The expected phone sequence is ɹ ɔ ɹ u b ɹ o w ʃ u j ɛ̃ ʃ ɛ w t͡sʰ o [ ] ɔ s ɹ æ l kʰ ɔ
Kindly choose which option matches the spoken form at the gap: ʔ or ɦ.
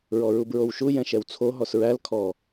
ɦ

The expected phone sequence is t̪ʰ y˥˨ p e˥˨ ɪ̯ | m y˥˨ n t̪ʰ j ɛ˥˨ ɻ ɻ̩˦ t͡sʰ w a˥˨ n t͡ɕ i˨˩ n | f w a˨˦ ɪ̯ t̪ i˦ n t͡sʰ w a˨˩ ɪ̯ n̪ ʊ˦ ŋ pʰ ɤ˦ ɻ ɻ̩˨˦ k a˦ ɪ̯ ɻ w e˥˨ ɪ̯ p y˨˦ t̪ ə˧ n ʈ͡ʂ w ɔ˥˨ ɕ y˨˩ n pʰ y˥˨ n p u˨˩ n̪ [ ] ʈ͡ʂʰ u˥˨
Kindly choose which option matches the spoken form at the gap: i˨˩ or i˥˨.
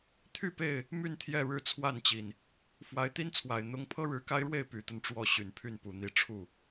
i˥˨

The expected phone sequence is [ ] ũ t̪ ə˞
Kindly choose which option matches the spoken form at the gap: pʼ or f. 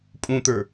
pʼ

